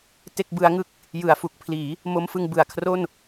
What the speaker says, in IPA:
t e˥˩ k̚ b ɯ˦˥ a̯ ŋ ɯ˥˩ k̚ | j ɯ˩˦ a̯ f u˨˩ k̚ pʰ l iː˩˦ | m o˦˥ m f ɯ˧ ŋ b ɯ˨˩ a̯ kʰ r o˥˩ n

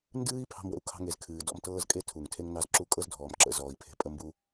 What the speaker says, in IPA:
n d ɨː˥ i̯ pʰ ɑ̤˥ m w ə̰˦ u̯ kʰ ɑ̤˦ ŋ e˨ z kʰ ɨː˩ d ɔ̰˦ m t ɤː˥ z kʼ e˥ tʰ u˩ ŋ tʰ e˥ ŋ n ɑ˦ z ǁ u˥ kʼ ɤ˦ z dʱ ɔː˩ m ǁ ə̰˨ z ɔː˩ i̯ pʰ e̤˨ pʼ ə˦ m b u˦

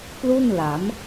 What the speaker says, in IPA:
p l u˥˩ n l a˩˦ m

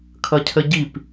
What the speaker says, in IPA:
kʰ ʌ cʰ ə ɟ i p

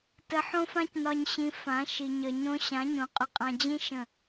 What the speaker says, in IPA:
t ə˨ ħ õ˦ f ã˦ c n ɒ˨ ɲ ɕ ĩ˨ f ã˨˦ ʃ i˨ ɲ ə˨ ɲ õ˦ ɕ ã˨˦ ɲ õ˨ qʼ ʊ˦ qʼ ã˦ d͡ʑ ĩ˦ ʃ ə̃˦˨

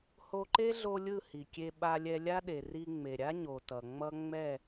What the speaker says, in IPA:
h o˧ ǃ e˦ ɮ o˧ lʲ ɯ˦˨ h i˨ kʲ e˧ ɓ a˧ lʲ ɛ˧ lʲ a˦ ɗ e˨ r i˧ ŋ͡m e˨ ɾʲ a˦ ɲ o˨ t ʌ˨ ŋ͡m ʌ˦ ŋ͡m ɛ˦˨

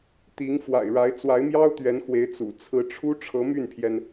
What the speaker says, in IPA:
t̪ i˧˥ ŋ f w a̰˨˩ ɪ̯ ɻ a˧˥ ɪ̯ t͡s w a˧˥ ɪ̯ m j ɑ˥ ʊ̯ t̪ ɥ ɛ˧˥ n x w e˧˥ ɪ̯ t͡s ṵ˨˩ t͡sʰ ɹ̩˧˥ ʈ͡ʂʰ u˥ ʈ͡ʂʰ ɤ˧˥ m y˥˩ n pʰ j ɛ˩ n

